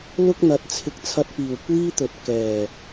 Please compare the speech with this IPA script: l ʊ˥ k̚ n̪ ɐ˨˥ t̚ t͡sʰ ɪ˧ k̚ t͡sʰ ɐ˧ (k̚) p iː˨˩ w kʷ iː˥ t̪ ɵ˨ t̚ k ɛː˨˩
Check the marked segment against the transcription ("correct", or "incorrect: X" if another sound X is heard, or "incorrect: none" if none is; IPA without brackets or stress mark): incorrect: t̚